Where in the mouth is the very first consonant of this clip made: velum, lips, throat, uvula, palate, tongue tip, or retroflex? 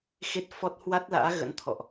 velum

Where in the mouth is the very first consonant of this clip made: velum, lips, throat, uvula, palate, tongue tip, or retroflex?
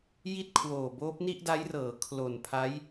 palate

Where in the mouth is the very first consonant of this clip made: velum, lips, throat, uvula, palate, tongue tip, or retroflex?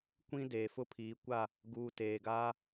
velum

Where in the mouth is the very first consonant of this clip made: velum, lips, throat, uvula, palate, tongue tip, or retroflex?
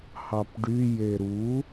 throat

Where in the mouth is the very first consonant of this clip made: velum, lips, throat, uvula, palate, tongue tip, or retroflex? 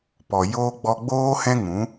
lips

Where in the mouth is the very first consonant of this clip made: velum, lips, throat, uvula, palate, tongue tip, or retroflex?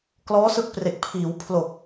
velum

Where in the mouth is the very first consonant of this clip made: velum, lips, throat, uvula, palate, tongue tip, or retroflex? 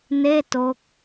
tongue tip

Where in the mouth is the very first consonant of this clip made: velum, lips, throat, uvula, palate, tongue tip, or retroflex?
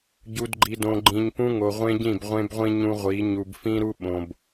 palate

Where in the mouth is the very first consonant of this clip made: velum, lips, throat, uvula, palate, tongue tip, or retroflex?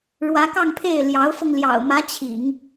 retroflex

